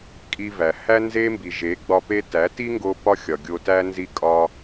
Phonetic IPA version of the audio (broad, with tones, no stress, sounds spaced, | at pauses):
kʼ i˧ v æ˨ h æ˦ n z e˦ m b i˨ ʒ e˨˦ ɡ͡b ɒ˧ p e˧ t æ˨˦ t i˦ ŋ ɡ o˦ p ɒ˦ xʲ ɒ˨ ɡʲ o˧ t æ˦ n z i˦ kʼ ɒ˦